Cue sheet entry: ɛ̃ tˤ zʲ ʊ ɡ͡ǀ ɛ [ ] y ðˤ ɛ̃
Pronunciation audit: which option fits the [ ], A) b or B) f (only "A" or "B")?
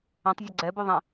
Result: A